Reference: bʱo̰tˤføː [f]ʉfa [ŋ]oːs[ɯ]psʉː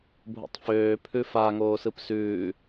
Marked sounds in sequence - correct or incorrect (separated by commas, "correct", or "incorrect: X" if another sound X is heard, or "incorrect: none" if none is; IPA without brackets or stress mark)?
incorrect: pʰ, correct, correct